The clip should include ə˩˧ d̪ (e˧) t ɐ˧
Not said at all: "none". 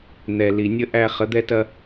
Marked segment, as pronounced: ɛ˧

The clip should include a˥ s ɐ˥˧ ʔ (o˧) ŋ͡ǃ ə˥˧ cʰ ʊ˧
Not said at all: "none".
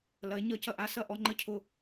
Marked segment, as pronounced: ɔ˧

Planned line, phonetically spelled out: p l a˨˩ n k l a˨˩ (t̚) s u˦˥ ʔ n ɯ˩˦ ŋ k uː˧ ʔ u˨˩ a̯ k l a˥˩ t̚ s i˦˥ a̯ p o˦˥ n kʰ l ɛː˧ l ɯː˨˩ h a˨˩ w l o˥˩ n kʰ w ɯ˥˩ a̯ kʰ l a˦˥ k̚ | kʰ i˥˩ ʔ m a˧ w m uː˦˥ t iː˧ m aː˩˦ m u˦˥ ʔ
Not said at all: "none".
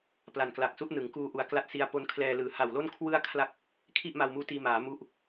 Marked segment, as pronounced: k̚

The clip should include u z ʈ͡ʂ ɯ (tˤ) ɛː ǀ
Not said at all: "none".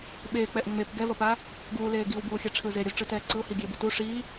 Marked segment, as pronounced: t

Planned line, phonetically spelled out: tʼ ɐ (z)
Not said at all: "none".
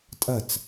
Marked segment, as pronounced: t͡s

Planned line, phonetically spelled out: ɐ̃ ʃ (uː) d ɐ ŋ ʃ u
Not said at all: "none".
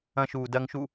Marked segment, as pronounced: uː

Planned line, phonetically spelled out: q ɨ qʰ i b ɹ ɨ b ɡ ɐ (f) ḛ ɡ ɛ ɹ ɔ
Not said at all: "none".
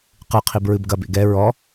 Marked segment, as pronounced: b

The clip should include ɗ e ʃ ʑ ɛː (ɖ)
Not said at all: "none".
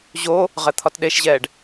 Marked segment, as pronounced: ɖ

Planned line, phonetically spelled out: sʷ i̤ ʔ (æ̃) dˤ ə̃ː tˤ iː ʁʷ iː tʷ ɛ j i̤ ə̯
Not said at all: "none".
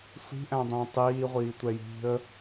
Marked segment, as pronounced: æ̃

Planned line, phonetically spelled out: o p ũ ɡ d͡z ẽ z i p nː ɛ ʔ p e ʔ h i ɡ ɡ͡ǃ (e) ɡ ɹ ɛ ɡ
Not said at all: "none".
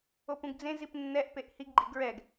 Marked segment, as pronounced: i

